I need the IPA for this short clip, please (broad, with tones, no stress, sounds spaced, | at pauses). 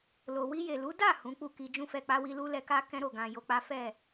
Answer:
l o˨ w i˧ j e˨ l u˨˦ d a˦˨ h ũ˨˦ k͡p u˦˨ k i˧ d͡ʒ ũ˦ f ɛ˧ k͡p a˦ w i˦ l u˦ l ɛ˧ k a˦ k ɛ̃˦ ɾ o˦˨ ɡ ã˨ j o˧ k͡p a˦ f ɛ˦˨